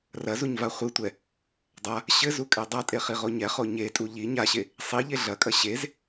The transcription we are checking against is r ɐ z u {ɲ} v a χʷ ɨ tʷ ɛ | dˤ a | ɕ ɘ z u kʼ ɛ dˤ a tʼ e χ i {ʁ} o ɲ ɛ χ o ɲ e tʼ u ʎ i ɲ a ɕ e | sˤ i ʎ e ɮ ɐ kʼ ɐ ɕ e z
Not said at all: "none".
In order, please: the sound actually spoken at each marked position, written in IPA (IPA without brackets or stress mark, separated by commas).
ɲ, ʁ